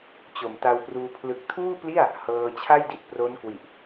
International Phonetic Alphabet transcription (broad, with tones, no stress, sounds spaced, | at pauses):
t͡ɕ o˨˩ m t a˧ w p r uː˧ pʰ l ɯ˨˩ k̚ tʰ uː˥˩ p l i˥˩ a̯ | h ɤː˧ t͡ɕʰ a˥˩ j d i˥˩ t̚ p r o˦˥ n k w i˨˩ ʔ